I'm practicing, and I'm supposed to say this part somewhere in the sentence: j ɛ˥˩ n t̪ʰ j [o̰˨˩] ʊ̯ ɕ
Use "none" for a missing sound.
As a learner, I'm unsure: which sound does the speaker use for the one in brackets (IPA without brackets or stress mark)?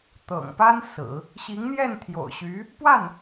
o̰˨˩